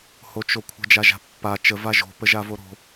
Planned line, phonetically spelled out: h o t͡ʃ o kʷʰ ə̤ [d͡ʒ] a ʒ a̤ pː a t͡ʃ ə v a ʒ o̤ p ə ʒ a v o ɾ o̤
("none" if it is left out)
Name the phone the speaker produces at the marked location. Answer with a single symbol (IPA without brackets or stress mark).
d͡ʒ